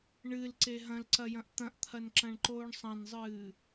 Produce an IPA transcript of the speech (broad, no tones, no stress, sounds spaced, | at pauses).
ɳ ɨ l ǀ e ɦ ɐ̃ l ǀ ɐ j ɐ̃ ʔ t̪ ɐ̃ ʔ t̪ʰ ɐ n ǁ ɐ̃ ɳ ǃ oː ɳ sˤ ɐ̃ n zˤ ɨː